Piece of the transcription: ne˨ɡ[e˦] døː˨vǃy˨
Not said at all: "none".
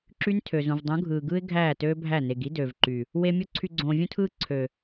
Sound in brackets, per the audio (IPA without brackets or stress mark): i˦